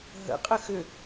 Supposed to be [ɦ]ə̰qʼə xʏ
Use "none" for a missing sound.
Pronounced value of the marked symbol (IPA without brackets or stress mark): ɦ